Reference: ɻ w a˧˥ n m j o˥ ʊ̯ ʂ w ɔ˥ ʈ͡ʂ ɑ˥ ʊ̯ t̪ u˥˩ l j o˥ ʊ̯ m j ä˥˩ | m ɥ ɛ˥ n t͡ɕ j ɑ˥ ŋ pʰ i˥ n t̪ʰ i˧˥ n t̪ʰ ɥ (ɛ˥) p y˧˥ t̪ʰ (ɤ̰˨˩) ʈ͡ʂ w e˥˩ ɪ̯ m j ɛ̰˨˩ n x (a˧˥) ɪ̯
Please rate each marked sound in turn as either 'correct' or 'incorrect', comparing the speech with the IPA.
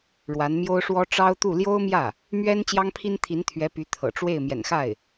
incorrect, correct, incorrect

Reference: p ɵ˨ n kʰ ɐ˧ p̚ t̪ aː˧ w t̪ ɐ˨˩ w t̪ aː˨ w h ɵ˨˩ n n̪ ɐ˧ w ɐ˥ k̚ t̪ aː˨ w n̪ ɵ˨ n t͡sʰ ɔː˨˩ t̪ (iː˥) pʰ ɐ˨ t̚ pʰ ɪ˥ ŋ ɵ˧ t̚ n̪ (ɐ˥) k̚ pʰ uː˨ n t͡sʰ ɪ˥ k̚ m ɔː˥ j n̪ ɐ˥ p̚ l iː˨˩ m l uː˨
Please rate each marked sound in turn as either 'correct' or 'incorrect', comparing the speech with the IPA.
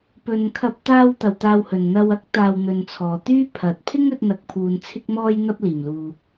incorrect, incorrect

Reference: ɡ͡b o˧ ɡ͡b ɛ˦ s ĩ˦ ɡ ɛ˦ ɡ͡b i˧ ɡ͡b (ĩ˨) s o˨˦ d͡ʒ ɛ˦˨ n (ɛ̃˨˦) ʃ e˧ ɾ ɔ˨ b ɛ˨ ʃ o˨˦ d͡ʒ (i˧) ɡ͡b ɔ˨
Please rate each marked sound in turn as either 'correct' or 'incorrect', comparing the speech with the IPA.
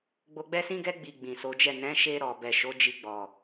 correct, correct, correct

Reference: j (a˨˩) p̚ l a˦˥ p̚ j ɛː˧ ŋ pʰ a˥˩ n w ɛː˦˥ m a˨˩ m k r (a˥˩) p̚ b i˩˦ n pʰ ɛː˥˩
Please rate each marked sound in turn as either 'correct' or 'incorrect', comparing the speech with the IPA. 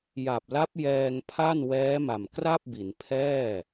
correct, correct

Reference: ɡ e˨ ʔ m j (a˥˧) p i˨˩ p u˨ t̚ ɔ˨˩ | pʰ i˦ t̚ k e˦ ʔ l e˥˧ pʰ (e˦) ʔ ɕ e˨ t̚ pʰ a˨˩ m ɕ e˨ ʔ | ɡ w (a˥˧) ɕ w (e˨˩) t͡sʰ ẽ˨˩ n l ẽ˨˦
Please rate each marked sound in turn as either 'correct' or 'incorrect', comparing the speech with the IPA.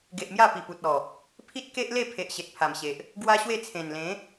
correct, incorrect, incorrect, incorrect

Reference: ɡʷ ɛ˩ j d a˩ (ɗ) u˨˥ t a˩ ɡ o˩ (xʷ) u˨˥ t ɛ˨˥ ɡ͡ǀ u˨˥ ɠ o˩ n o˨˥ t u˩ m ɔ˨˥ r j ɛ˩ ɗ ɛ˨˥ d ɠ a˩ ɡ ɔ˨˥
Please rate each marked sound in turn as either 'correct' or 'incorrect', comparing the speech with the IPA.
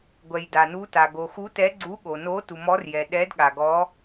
incorrect, incorrect

